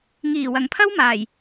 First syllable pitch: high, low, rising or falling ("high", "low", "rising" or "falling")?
low